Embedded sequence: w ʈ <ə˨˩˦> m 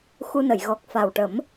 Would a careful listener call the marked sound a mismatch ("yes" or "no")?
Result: no